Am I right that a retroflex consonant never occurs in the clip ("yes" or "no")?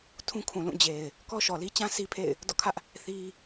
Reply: yes